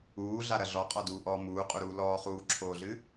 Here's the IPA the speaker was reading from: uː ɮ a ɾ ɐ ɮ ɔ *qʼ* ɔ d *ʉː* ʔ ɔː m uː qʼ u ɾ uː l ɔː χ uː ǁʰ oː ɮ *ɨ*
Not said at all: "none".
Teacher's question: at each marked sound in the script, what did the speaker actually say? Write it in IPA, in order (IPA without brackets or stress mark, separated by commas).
qʼ, uː, ɨ